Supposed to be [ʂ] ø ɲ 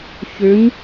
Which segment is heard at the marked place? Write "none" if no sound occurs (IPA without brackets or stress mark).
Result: ç